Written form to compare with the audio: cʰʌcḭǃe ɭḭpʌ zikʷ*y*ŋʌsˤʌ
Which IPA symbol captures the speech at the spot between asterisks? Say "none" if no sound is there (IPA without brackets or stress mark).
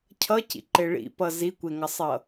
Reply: e